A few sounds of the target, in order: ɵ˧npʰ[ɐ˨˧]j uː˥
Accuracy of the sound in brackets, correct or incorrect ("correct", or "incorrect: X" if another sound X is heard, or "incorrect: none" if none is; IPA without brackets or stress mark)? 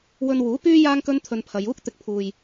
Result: correct